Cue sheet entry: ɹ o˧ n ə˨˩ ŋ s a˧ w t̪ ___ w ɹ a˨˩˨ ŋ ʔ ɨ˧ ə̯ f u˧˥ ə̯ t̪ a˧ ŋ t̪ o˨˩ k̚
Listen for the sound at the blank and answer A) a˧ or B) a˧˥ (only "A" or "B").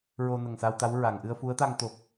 B